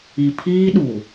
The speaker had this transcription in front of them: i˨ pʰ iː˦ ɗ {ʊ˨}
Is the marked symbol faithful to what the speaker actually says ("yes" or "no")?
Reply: no